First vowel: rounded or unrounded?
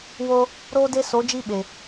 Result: rounded